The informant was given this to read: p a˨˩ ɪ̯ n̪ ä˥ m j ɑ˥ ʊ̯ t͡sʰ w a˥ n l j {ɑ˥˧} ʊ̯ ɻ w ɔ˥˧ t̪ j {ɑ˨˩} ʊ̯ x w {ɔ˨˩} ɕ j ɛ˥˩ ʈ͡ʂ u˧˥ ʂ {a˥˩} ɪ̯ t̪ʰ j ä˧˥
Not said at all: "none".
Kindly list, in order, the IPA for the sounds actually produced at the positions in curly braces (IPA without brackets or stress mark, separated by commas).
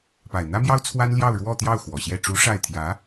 ɑ˥˧, ɑ˥˩, ɔ˨˩, a˥˩